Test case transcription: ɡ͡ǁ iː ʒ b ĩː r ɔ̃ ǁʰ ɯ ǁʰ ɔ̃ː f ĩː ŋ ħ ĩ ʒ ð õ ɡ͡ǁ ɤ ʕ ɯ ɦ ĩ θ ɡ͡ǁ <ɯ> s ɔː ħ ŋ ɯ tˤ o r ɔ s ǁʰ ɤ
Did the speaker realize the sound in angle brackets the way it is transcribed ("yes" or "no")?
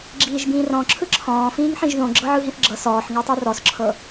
no